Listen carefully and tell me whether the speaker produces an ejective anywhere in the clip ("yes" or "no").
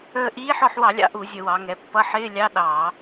no